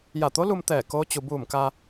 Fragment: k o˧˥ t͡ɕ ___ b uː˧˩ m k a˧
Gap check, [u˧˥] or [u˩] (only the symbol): u˩